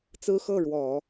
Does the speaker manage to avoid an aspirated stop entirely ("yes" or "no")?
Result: yes